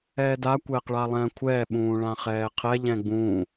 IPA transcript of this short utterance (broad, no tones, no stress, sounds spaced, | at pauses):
ɛː d a kʷ ɛː q ɭ a lˠ ɛ̃ː kʷʰ ɛː ɓ ũː ɭ ã χ ɛː qʰ ɛ ʎ ɛ̃ ɡ͡b ũː